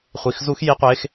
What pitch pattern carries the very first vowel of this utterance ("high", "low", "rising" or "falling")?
low